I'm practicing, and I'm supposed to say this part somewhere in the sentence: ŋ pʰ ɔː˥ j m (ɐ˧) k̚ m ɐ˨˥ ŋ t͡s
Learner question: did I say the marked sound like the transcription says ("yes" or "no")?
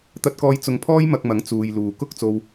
yes